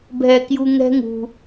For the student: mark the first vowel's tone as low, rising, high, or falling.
low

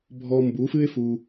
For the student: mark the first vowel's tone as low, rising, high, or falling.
high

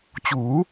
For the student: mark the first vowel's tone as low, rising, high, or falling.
rising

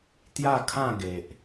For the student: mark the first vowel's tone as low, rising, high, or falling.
falling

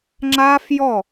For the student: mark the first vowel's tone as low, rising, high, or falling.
high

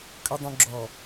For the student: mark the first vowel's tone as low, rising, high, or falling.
low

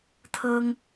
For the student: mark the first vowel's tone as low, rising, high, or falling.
high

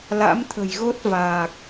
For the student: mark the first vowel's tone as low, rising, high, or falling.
rising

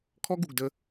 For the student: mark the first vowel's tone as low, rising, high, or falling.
high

